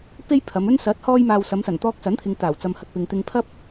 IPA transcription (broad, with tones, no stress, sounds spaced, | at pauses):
p e˥ j pʰ ɐ˨˧ m ɵ˥ n s ɐ˨˥ t̚ h ɔː˧ j m aː˨ w s ɐ˨˧ m s ɐ˨˩ n t̪ ɔː˧ k̚ s ɐ˨˥ n t̪ʰ ɪ˨ ŋ t̪ aː˨˩ w t͡s ɐ˨ m h ɐ˨ t̚ p ɪ˨ ŋ t̪ ɪ˧ ŋ pʰ ɐ˥ p̚